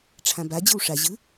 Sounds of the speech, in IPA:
ʈ͡ʂʰãba d͡ʑɯwʂa ʑɯ

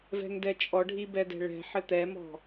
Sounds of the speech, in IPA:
vɛ̤ŋdɛt͡ʃʼɔɖʱi bɛdɛ̤ɭɛ̤ħɘ t̪ɛmɔ̤

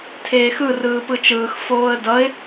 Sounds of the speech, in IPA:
tʰeːxɯ rɯːpɯt͡ʃɯːx foːə̯dʌɪ̯

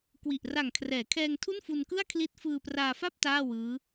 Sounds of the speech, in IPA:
kwi˨˩ʔra˨˩ŋkʰrɛː˩˦ kʰɛː˧ŋtʰu˥˩nfu˧nkɯ˥˩a̯ kʰli˦˥t̚fɯː˧praː˧fa˥˩p̚ taː˥˩wɯː˦˥

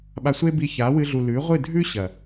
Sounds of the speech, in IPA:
ɓa˧sʷe˦bi˧ ça˨˦wɨ˧ɮu˨ lʉ˨˦ʁʷɨ˦˨ dʱʉ˦ ɕɐ˨

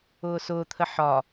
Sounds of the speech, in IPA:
ʊːsʊːt̪ʰə ħɒ

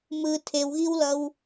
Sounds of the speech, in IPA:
mɯ tʰewɣiwlʌw

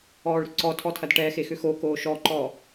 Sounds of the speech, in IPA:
ɔːɭɾʏǀɔtʰɔ tʰɐdʈɛxe xʏxokoː ʃɔǃɔ

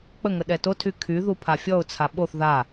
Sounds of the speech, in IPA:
k͡pəŋə ɗɛtotʰy kʰy ðupʰafʲɔʊ̯t͡sʰa ɓoθ ða

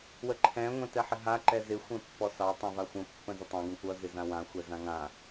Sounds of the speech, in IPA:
wəǃʰɛ̃ ŋʷɛ̃tɛħɪɦa ǃɛzɪ xʷɛ̃pːɔsɑ tˤãvaxʷə̃ pːə̃zətˤɑ̃ ɡə̃kʷʌ zɪzãwã xʷɛzãŋã

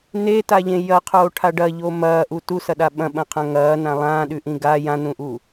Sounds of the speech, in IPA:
netaʎẽ jɐqʰoːʈʰa ɖɐʎo mɐːʔu tusɐɗa ɓɐ̃ɓɐ̃qʰɐ̃ ŋɐːnã lˠãːɗʉʔĩ ɡa jãnũʔu

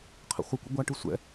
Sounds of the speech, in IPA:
qʰə̰χʷəkʷə̰ ɡʷaʈɯ sʷɛ̰

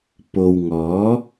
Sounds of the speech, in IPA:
po˨wŋɔː˨˥

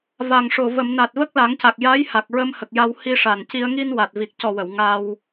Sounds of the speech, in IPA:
va˨˩ŋʂo˨˩ və˨˩˨m na˨˩t̚və˦˥k̚la˨˩˦ŋca˨˩k̚ ja˧˥j ha˨˩k̚ɹə˧mhə˨˩k̚ja˧w hi˧ʂa˨˩nci˧ə̯ ŋi˧n wa˨˩t̚vi˨˩k̚cɔ˨˩wə˨˩˨w ŋa˧w

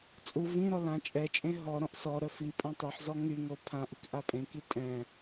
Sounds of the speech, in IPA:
t͡sʼu vĩɾɔ lãt͡ʃʼɛt͡ʃʼẽ ɦɔ ɾɔ̃ʔsɔɾœ fipʼɔ̃ tˤœħzɔ ŋyŋo pʰãʔik ʔapʼẽki tʼɛ̃

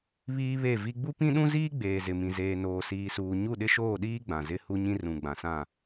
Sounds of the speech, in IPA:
βiː˦βe˦˨vi˦ ɡ͡bu˦pĩ˦ɗũ˦ziː˦ ɡ͡beː˨zɪ˨mĩ˨ zeː˨noː˨siː˨suː˨ ɲu˦˨ɗɪ˦ʃoː˦˨ɗiː˦ ɡ͡bã˨zɪ˦ hu˦ɲĩ˦rũ˨ ɡ͡bã˨sã˦˨

